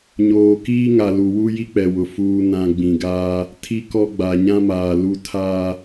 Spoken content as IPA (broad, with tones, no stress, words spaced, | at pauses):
ɲoː˨kiː˦ŋa˨ lu˨wu˦ ji˦k͡pɛ˨wʊ˨ fuː˨nã˨ ɡ͡bĩ˨ɡaː˦ | tʰi˦kɔ˦ ɡ͡ba˨ ɲã˦maː˨ lu˦ tʰaː˦